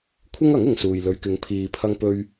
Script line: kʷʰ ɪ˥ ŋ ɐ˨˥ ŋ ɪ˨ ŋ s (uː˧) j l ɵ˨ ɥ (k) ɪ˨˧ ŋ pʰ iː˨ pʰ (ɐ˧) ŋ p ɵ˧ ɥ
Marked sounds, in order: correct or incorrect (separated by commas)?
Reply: incorrect, correct, correct